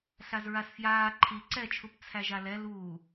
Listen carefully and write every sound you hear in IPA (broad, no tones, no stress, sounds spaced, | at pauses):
ɬ a z ɹ a s f j aː ǃʰ i ǀ ɛ t͡ʃʰ u p t͡sʰ æ ʒ a l ɛ l uː